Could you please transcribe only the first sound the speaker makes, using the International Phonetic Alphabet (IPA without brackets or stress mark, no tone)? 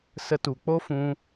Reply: s